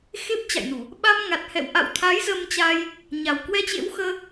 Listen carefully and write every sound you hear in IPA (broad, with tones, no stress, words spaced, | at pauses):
xe˦˥p̚t͡ɕa̰˧˨jnu˧˩˨ | ɓa˧mŋa˨˩t̚hɛ̰˧˨w ʔa̰˧˨wt̪ʰa˨˦j zə˧mt͡ɕaː˧j | ɲa˨˩wkwɛ˧t͡ɕḛ˧˥wxəː˧